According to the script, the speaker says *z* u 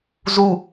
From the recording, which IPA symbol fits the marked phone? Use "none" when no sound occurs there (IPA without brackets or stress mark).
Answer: z